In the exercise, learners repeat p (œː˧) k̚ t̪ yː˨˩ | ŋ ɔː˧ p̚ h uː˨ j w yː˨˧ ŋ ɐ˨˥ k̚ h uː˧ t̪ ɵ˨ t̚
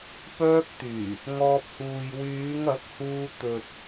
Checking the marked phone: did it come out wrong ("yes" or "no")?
no